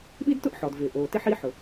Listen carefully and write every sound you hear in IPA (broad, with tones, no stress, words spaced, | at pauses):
ɓi˥dtʊ˥ʔħɔ˩d vɪː˩ʔoː˩tɪ˥ ħi˥ħʊ˩